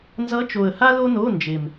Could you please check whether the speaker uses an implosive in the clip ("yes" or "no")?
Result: no